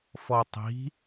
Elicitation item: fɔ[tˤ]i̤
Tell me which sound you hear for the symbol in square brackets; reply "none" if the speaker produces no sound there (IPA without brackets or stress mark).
tˤ